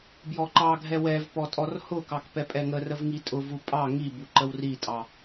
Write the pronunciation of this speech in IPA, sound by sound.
bjɔǃɑɡʱɛ wɛvpɔ tʼɔrhʊkɑk pɛpʼɛŋərəv ŋitʼʊvu pʼɑ ŋibu ǃəwritʼɑ

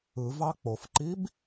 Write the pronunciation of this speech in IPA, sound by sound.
ɯ vɑk͡pofǃib

